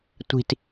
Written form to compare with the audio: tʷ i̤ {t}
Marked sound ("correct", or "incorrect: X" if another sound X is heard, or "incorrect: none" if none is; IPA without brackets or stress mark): correct